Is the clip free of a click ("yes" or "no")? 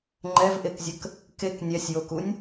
no